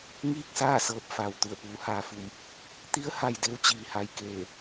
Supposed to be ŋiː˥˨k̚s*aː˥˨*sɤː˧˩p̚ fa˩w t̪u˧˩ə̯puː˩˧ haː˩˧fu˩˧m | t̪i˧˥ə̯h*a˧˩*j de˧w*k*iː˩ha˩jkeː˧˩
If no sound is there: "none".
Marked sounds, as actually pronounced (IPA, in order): aː˥˨, a˧˩, t͡ɕ

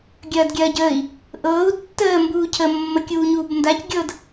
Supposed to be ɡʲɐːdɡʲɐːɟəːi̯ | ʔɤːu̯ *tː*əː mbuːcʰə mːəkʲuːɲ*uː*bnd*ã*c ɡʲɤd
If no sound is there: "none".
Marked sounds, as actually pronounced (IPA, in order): tː, uː, a

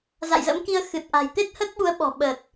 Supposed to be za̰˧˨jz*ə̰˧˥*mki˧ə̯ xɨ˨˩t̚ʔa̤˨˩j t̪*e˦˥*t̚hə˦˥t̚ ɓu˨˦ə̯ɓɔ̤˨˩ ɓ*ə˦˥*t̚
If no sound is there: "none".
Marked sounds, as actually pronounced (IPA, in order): ə̰˧˥, e˦˥, ə˨˩

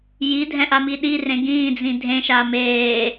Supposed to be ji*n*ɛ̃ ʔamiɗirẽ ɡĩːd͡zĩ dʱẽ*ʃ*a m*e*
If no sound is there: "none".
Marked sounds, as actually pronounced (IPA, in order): dʱ, ʃ, eː

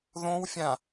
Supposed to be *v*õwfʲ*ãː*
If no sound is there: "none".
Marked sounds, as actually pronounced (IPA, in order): ð, ã

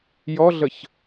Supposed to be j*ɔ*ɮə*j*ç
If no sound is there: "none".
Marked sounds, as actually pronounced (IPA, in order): ɔ, none

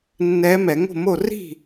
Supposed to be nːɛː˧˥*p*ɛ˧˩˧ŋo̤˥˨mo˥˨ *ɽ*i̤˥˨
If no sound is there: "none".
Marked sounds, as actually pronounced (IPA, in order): m, r

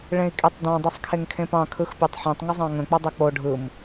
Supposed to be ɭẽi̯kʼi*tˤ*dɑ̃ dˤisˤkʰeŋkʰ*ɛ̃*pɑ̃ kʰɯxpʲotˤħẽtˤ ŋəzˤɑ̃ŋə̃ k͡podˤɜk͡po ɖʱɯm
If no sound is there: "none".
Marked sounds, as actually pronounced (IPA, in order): tˤ, ẽ

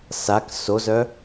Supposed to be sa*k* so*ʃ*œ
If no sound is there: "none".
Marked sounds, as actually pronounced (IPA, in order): k, z

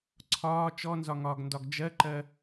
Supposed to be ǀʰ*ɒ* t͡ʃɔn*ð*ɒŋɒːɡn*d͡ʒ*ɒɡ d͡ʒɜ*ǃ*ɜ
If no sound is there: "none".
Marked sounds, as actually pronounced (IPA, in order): ɒː, z, d, ǃ

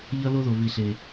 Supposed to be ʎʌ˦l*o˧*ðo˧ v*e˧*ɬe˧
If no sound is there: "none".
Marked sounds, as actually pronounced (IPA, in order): o˦, i˧

